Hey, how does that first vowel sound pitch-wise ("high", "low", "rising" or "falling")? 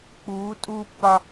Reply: rising